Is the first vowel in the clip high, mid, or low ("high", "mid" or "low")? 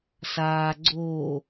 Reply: low